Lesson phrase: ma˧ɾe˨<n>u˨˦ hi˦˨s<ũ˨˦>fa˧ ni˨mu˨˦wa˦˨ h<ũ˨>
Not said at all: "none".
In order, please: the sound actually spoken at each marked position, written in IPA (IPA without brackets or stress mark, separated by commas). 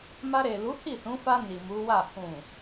l, ũ˨˦, ũ˨